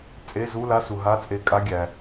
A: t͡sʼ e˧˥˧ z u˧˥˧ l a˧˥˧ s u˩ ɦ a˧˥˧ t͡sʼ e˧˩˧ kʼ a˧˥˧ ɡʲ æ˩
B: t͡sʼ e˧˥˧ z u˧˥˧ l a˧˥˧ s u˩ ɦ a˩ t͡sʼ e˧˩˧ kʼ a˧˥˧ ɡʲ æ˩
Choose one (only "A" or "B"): A